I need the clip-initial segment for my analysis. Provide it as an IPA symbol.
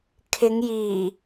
kʰ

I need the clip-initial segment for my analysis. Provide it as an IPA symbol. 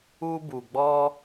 u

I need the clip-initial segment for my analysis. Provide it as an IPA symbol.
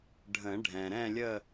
ɖʱ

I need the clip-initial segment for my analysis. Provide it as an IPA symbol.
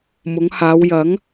m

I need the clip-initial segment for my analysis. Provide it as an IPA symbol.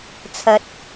t͡sʰ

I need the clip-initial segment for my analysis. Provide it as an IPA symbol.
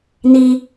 n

